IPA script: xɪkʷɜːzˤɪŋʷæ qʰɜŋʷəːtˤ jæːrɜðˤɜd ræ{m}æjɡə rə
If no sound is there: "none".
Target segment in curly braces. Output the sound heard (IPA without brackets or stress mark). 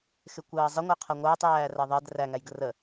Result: ŋ